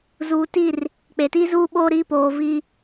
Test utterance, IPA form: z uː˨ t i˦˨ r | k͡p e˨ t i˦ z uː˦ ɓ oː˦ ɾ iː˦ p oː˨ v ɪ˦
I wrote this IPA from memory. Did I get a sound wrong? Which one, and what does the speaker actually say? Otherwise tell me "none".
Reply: ɪ˦ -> i˦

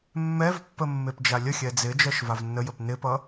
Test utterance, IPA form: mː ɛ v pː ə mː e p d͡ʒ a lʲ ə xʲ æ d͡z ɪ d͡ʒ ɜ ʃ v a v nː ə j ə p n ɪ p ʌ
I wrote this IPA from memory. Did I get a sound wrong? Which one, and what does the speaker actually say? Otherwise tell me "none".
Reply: æ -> ɛ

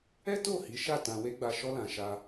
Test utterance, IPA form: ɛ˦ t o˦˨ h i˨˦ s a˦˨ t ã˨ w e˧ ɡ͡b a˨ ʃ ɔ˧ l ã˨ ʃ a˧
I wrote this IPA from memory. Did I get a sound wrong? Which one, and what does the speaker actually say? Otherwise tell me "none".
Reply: s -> ʃ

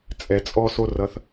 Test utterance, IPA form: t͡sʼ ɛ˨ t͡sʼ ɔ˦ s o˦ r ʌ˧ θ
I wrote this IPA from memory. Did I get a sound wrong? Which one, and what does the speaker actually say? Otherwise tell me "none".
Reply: none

